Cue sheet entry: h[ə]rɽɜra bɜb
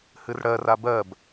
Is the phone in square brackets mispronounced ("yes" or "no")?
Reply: yes